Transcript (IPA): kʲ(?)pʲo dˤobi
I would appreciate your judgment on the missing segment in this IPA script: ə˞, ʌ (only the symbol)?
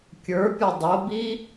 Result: ə˞